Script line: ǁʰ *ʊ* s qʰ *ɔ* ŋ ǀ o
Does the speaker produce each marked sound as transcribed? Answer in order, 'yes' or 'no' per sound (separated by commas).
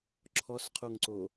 no, no